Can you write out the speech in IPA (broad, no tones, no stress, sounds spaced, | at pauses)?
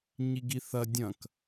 ɲ i ɡ i θ ɐ dʲ ɐ̃ k